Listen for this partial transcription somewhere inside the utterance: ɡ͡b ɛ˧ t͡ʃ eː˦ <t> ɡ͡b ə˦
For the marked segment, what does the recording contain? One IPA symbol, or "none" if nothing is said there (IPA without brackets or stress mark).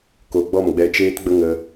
t